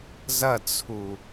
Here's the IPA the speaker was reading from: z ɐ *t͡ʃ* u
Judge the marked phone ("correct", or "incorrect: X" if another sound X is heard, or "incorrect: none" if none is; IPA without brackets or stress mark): incorrect: t͡sʰ